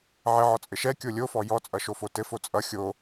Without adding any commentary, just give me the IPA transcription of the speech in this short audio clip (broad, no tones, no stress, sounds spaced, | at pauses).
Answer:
ʕ ɘ ʕ ɔ t͡sʼ ɘ ʃ ɛ kʲ o lʲ o f ɔ j ɔ t͡sʼ ʌ ʃ o f o t ɘ f o t͡sʼ ʌ xʲ o